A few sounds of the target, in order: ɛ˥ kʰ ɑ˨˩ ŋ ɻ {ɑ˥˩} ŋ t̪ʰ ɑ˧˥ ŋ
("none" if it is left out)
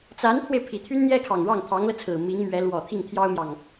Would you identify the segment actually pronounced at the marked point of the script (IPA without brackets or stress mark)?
ɑ˥˩